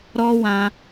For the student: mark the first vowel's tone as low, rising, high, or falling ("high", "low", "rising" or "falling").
high